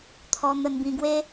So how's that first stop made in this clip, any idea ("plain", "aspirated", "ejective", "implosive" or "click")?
aspirated